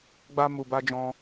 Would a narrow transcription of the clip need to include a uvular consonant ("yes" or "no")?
no